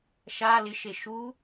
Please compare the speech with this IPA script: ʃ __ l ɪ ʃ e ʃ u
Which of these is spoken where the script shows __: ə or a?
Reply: a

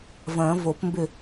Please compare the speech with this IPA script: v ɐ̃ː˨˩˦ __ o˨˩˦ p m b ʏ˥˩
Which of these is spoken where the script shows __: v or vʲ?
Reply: v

